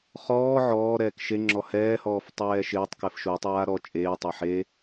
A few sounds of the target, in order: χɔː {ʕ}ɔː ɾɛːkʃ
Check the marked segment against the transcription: correct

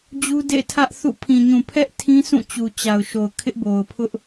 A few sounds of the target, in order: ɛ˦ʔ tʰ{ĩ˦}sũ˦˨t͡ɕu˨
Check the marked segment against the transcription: correct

